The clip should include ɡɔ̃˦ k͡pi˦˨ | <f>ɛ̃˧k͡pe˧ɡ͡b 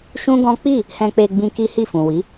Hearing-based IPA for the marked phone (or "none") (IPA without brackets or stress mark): h